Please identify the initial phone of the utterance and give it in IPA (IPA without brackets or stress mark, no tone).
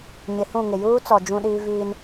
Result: ɲ